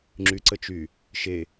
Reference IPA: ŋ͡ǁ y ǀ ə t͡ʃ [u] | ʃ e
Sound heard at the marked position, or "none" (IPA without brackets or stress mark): y